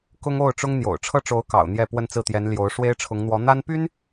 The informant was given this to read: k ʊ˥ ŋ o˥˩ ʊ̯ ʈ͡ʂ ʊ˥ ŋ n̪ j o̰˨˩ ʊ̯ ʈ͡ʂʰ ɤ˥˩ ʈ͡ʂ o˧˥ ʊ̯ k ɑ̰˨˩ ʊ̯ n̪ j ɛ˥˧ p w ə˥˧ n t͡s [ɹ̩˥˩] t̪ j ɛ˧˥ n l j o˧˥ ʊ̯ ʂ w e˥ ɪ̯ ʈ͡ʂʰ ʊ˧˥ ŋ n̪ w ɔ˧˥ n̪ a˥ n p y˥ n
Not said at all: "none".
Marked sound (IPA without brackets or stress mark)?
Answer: ɹ̩˥˩